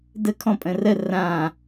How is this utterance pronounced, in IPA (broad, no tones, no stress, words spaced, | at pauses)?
dəkʰɔ̃ pʼə̃rə rã